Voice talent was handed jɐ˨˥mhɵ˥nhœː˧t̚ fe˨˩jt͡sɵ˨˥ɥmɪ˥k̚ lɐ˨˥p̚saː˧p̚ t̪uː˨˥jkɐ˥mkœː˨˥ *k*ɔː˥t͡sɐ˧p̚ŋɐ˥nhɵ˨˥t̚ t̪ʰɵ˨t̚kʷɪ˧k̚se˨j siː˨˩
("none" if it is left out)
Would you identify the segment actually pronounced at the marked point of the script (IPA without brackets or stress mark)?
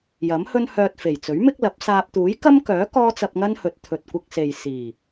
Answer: k